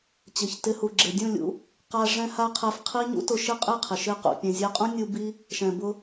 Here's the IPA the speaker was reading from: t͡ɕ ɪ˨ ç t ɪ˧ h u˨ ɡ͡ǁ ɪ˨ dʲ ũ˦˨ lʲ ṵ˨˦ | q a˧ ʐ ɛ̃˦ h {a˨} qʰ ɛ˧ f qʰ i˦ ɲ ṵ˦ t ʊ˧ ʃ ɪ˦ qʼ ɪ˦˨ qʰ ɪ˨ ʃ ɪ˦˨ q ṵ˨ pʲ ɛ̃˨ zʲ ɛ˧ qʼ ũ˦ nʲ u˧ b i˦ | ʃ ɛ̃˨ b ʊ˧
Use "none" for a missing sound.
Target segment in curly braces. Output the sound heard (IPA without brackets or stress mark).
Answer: a˦